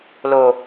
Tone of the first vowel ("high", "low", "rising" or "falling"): low